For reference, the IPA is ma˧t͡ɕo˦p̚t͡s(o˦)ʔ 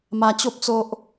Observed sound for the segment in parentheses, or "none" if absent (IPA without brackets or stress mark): o˦